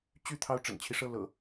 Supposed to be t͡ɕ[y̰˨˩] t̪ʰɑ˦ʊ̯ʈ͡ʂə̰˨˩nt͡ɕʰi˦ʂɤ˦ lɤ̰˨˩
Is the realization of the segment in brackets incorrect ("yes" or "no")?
yes